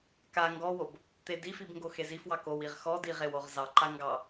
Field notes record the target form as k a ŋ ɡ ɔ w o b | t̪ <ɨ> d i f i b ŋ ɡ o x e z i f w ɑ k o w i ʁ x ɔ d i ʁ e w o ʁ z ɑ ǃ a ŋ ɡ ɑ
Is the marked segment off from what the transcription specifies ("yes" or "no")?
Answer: yes